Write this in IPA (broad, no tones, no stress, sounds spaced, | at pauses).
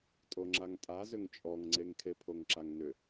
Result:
tʼ o ŋ͡ǁ a ŋ tʼ a z ʏ ŋ t͡ʃʼ ɔ ŋ ŋ͡ǀ e ŋ kʰ e pʰ o ŋ ǁ a ŋ n ʏ